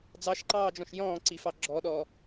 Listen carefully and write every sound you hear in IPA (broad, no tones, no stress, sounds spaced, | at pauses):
d͡z ɑ ʃ ǃ ɑː d͡ʒ ɔ̃ ʃ j ɔ̃ː ǀ i f ɑ ɡ͡ǁ ɔ ɗ ɔ